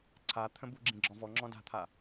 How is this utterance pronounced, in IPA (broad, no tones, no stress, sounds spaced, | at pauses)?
ǀʰ a t̪ʰ ə̃ b u ɡ͡ǁ ĩ ɡ͡ǁ ɔ̃ v ɔ ŋ͡ǁ ɔ̃ d a̤ t̪ʰ a